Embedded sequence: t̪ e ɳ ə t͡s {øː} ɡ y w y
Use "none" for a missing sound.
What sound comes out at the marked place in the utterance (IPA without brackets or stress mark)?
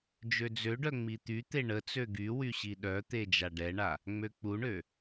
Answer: ø